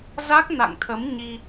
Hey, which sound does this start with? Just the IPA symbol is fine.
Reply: z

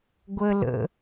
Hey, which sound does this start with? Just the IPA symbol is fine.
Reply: ɡʷ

